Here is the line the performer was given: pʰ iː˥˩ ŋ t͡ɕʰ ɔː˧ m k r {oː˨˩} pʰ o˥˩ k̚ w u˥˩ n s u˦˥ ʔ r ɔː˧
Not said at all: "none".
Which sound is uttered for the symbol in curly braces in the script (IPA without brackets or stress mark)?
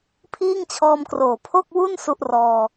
oː˨˩